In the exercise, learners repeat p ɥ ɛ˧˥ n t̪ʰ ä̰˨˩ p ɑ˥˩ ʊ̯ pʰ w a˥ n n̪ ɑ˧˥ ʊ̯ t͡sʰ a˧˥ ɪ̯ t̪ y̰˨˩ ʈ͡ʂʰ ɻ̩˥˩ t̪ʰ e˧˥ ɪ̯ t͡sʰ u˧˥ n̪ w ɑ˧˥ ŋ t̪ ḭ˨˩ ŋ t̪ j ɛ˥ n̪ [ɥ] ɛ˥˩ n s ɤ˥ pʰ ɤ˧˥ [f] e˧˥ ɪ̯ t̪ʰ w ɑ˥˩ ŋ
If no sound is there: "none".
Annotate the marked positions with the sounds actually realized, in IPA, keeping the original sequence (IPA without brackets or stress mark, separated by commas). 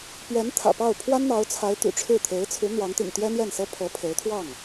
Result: j, pʰ